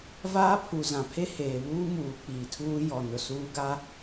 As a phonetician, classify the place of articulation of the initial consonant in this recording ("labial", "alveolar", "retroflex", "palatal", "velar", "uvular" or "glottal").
labial